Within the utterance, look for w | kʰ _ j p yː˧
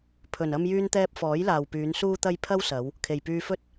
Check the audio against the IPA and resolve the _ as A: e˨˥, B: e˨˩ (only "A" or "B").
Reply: B